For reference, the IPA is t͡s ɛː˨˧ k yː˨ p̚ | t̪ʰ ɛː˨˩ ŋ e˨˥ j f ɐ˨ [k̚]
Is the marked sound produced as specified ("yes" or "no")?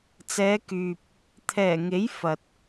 no